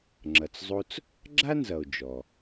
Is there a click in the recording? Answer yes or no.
yes